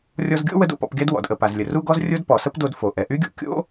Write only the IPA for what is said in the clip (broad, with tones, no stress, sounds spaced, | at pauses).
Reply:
rʲ ɔ˧ z ɡʲ o̰˥ w ə˥ d o̰˩ p ɔ̰˧ p ɡʲ a˥ d w ɔ̰˩ d ʔ ə˩ p a˩ z lʲ ə˩ r u˥ ɡ ɔ˥ z rʲ o˥ d p ɔ˩ s ə˥ p d o˧ d f o˩ ʔ ɛ˩ ʔ y˥ ɡʲ o̰˥ kʲ o̰˥